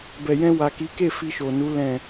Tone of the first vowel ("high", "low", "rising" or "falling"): low